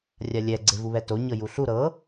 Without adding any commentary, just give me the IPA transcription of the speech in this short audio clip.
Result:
rʲ a lʲ ɛ ɡ͡ǀ e v u β ɛ t o ɲ ɤ j u ɬ u ɾ ɤ

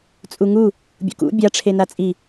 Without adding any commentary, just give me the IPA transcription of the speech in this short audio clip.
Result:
t͡sʼ u ŋ u | bʲ ṵ k ṵ bʲ a ʈ͡ʂʰ e n a t͡sʼ i

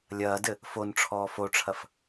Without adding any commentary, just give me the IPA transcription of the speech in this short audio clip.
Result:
lʲ ɐː d ɘ | f o n ʈ͡ʂʰ ɔː f o ʈ͡ʂʰ ɐ f

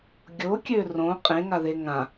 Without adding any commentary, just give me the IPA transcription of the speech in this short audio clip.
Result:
ɡʲ o kʲ ø r õ qʼ ẽ ŋ a ð e ŋ ã

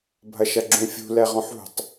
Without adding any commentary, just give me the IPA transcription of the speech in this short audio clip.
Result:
bʱ ɐ ʃ ɐ ɡ͡ǁ ũ fʲ ṳ l ɛ ʁ ɔ̃ ħ ṳ tˤ

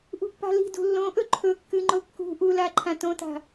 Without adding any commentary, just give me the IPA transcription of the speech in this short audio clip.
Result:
ʔ ṳ pː a̤ l i̤ d ṳ lː õ ʔ ɵ ǃʰ ɵ kː ɨ ŋ͡ǃ o kː ṳ ʔ u l a ǃʰ ã t õ t a̤

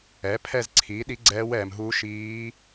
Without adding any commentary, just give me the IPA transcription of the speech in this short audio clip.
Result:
ɛ˩˥ pʰ ɛ˦˨ z ǀʰ iː˩˥ ɗ i˧˥ ɡ͡ǀ ɛː˧˥ w ɛː˨ m ɦ u˧˥ ʃ iː˧˥

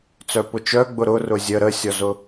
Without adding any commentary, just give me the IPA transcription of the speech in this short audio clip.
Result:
t͡s œ p ʊ t͡ʃ œ ɡ͡b ʊ ɾ ʊ r ʊ zʲ ə ɾ ə sʲ ɔ z ʊ

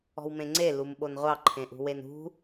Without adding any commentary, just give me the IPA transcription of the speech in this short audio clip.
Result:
ɔ̤ w m ẽ ŋ͡ǀ e l u m ɓ o n ʁʷ ɑ ǃʰ ẽ ʔ ṳ w e n ṳ

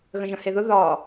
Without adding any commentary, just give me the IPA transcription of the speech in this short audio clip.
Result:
ɣ ə̃ ʒ ə̃ h e ð ʊ ð ɒ

